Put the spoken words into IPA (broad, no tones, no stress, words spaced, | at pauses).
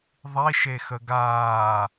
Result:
ðˤiʃexə ɡaː